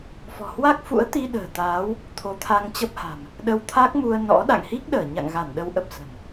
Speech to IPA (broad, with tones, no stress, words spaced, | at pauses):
fɔ̤˨˩hwa˦˥k̚ fṵ˧˥ə̯t̪i˧ ɗə̤ː˨˩t̪aː˨˦w | t̪ʰo˨˦t̪ʰa˧ŋt͡ɕə˦˥p̚ha̤˨˩m | ɗə˧wt̪ʰa˦˥k̚mu˧ə̯nɔ̰˧˥ ɗa̰˧˨ŋhi˦˥k̚ ɗəː˧˩ɲa̰˧˨ŋɣa˧˩n ɗə˨˦wʔə˨˩p̚sə̤˨˩m